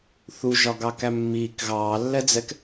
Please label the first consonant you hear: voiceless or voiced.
voiceless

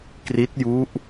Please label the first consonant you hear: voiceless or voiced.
voiceless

